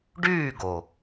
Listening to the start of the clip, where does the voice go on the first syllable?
falling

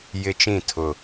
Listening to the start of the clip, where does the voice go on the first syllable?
high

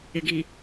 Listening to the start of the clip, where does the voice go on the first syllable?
low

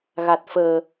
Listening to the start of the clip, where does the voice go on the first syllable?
low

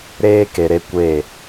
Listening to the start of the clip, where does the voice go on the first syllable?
high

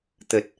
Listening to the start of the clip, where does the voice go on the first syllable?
low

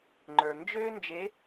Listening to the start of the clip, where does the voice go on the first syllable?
low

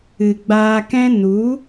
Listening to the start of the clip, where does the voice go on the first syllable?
low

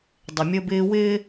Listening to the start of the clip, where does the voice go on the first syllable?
low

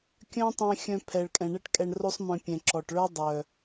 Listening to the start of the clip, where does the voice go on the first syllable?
high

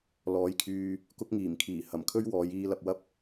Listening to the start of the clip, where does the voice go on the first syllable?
rising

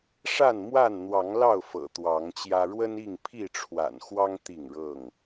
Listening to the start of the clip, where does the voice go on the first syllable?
falling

